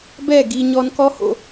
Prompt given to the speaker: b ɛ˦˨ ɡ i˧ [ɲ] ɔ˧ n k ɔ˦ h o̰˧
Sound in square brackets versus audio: correct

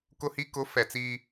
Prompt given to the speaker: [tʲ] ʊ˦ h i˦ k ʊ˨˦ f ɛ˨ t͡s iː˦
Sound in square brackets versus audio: incorrect: k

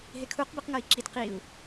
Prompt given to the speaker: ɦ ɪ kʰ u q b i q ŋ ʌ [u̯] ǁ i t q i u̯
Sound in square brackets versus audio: incorrect: i̯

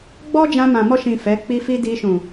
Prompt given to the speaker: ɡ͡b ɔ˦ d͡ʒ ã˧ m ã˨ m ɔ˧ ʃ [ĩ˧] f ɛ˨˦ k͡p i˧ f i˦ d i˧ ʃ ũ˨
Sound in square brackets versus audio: incorrect: ĩ˨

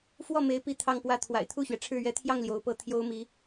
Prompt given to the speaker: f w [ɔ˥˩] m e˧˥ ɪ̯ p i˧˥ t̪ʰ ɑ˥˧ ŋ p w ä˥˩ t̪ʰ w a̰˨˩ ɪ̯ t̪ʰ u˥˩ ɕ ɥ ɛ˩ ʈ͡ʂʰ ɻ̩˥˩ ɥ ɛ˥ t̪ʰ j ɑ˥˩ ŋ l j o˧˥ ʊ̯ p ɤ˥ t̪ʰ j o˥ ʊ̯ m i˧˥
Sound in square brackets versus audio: correct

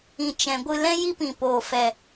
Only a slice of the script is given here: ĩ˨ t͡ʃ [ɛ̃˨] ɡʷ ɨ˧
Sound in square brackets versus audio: correct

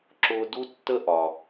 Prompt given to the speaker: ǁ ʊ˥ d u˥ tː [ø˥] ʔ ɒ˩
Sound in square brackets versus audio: incorrect: ə˥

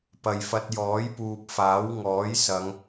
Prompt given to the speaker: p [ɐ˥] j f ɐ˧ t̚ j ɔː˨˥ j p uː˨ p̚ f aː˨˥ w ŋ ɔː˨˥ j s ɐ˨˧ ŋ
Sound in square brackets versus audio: incorrect: ɐ˨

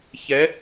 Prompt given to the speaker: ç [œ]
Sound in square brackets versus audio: incorrect: ɛ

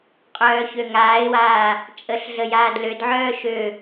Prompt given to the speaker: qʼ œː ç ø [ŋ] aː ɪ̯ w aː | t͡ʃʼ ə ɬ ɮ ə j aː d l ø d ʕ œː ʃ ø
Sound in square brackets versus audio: correct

